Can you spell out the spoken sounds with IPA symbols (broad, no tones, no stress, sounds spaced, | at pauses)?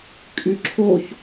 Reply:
kʼ y ǁʰ o ç